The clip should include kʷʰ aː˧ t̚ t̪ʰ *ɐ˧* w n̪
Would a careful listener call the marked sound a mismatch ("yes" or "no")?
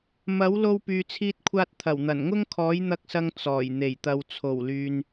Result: yes